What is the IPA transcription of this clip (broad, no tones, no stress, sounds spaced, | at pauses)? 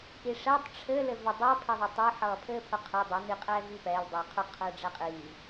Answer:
ʔ i ʂ ɛ tˤ ʈ͡ʂʰ ɘ l ɘ v ɘ dˤ ʌ pʰ e ðˤ e tˤ ɘ ħ ʌː pʰ ɘː pʰ ʊ qʰ e dˤ ʊ n i qʼ ɛː v i p ɛ l dˤ ɘː qʰ ʊ qʰ ɘː ɖ͡ʐ ɛ qʼ iː